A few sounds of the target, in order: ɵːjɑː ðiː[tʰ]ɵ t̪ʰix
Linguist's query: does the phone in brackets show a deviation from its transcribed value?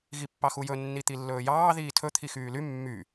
no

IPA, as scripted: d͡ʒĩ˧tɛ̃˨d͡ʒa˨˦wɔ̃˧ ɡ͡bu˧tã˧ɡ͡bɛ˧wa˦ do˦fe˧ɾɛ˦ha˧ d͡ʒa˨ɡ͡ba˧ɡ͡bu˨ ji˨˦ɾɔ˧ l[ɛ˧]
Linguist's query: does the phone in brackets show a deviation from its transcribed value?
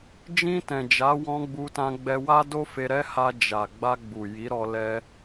yes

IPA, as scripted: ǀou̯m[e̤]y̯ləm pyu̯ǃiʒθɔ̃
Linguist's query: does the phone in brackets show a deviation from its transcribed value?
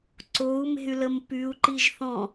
no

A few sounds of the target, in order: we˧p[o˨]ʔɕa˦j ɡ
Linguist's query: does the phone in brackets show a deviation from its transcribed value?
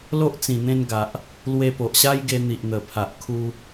no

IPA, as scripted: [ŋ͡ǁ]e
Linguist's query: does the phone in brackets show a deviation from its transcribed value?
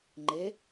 yes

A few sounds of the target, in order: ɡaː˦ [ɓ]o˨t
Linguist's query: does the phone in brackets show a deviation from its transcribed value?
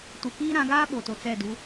no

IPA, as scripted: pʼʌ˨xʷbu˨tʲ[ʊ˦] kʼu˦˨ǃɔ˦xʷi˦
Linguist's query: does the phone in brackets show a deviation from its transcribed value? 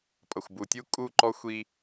yes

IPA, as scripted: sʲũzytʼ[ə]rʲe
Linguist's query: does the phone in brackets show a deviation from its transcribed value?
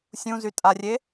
yes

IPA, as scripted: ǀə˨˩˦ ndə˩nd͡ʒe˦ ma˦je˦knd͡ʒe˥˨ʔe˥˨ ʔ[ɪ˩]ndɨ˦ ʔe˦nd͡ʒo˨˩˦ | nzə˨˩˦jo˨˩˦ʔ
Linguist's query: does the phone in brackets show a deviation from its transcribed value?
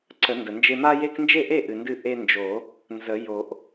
yes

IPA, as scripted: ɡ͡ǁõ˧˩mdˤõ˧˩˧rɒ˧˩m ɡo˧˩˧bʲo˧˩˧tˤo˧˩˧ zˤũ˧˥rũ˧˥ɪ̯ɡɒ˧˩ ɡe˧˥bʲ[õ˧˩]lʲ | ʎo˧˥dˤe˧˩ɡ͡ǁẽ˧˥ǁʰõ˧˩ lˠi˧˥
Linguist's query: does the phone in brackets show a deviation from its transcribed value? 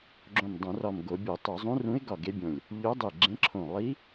no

